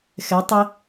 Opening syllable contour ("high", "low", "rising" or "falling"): rising